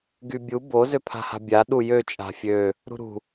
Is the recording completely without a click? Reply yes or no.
yes